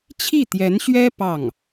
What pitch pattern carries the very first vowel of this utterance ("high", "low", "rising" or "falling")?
falling